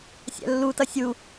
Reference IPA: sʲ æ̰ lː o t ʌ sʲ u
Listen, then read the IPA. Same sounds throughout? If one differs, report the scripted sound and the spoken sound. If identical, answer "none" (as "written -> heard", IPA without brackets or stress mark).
o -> u